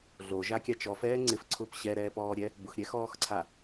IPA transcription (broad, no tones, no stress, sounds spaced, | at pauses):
ɮ o ʒ a kʲ a t͡ʃ ɔ f ɛː ŋ͡ǀ ɪ f ǀʰ ʊː p ɕ ɛ ɾ ɛː p ɔː ɾʲ ɛ | b ʊ x ɾʲ ɛ x ɔː x ǀʰ a